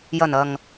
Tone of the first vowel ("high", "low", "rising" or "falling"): low